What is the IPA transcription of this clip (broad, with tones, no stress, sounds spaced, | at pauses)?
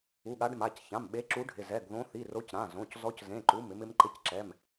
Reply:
u˩˧˩ ɠ a˨˦ ɖ m a˩˧˩ c ç ã˩˧˩ m ɓ e˨˦ ǁ u˨˦ ɖʱ ɪ˩˧˩ z ɛ˩˧˩ ɡ ð õ˨˦ θ i˩˧˩ r o˨˦ c ɾ ã˩˧˩ z õ˩˧˩ c z ɔ˨˦ c z ẽ˩˧˩ ǃ u˩˧˩ m ɪ˨˦ m ɪ˨˦ m ǃ ɪ˨˦ c ǁ ɛ˩˧˩ m